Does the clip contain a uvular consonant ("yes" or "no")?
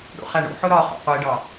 yes